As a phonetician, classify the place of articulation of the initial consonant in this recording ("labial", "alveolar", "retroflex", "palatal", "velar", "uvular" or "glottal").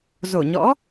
alveolar